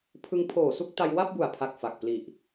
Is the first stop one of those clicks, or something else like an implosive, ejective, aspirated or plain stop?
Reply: aspirated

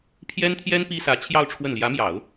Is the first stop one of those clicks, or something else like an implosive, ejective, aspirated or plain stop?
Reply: aspirated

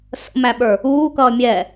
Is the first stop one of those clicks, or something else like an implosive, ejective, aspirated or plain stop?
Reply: implosive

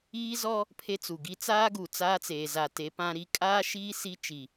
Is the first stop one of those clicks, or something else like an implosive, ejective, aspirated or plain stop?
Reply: aspirated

